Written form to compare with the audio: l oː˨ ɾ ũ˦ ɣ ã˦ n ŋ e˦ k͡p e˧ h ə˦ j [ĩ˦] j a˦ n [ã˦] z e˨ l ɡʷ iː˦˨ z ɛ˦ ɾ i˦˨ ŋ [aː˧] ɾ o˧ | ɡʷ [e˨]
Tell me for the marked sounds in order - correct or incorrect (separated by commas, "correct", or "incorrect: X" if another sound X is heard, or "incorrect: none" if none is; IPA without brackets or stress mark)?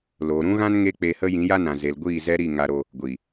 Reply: incorrect: ĩ˨˦, incorrect: ã˨, incorrect: a˧, incorrect: i˨